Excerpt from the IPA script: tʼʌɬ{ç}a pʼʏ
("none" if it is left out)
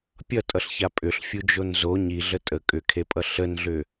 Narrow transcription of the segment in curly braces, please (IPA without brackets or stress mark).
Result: ç